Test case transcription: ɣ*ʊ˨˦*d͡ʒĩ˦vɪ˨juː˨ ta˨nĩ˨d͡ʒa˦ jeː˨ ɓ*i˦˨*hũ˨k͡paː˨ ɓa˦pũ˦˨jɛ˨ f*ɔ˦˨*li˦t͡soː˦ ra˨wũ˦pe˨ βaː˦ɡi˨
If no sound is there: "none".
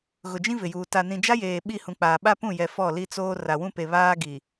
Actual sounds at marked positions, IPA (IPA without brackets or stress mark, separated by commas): ʊ˨, i˦˨, ɔ˦˨